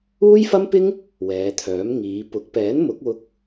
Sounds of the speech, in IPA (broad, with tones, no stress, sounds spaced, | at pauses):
uː˥ j f ɐ˥ m p ɪ˥ ŋ | w ɛː˨˧ t̪ʰ œː˨˥ m ŋ iː˨˧ p ʊ˨˥ k̚ p ɛː˨˥ n m ʊ˨˥ k̚ w ʊ˧ k̚